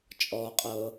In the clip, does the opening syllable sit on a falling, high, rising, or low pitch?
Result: low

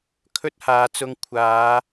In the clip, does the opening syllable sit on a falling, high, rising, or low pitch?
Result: high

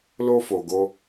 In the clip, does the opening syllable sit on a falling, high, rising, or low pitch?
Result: high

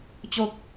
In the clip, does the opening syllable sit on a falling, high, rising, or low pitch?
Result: low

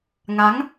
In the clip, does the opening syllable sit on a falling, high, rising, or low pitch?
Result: rising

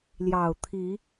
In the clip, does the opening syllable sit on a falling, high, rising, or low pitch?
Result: low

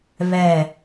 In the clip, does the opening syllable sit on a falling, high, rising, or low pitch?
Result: falling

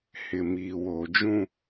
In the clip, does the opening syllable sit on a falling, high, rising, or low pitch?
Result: low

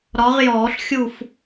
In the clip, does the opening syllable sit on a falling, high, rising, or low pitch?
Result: rising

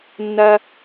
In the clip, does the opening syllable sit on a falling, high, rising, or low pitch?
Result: high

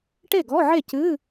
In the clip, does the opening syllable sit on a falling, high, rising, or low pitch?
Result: falling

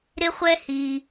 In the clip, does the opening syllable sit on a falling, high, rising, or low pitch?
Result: high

